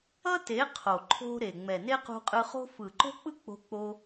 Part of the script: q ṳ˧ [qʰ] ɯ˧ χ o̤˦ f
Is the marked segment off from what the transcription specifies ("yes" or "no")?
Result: yes